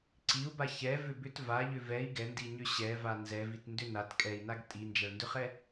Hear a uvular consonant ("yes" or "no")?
yes